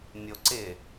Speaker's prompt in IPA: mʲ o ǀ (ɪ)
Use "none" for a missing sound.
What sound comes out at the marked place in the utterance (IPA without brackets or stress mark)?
ɪ